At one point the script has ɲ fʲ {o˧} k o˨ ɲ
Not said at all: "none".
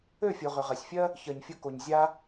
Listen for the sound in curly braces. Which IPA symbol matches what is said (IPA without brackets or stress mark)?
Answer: o˧